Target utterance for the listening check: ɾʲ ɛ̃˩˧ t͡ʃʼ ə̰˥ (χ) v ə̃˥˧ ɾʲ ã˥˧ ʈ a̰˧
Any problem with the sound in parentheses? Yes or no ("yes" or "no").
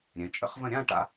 no